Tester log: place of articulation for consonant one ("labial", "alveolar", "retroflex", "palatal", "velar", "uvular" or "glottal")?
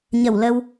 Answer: palatal